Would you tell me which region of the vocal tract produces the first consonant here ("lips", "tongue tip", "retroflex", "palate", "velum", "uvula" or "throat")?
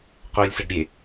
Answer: uvula